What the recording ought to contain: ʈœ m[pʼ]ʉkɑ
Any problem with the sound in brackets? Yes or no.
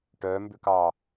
yes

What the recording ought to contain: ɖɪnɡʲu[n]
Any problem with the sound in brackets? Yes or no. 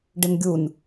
no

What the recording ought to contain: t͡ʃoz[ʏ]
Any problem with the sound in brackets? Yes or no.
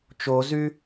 yes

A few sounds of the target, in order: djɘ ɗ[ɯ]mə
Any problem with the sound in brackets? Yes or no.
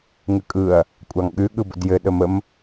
yes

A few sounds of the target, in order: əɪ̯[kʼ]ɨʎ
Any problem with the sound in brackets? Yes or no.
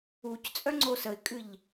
no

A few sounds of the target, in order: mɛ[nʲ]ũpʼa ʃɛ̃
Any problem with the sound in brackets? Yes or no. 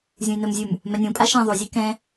no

